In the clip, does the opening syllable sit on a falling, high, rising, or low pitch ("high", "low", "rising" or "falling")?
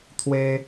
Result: high